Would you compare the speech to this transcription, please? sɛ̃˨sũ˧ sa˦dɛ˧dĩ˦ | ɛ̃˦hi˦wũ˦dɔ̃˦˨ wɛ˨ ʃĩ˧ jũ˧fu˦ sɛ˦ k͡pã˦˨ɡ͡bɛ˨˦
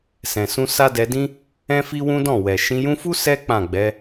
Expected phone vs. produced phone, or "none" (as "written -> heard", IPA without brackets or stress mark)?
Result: h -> f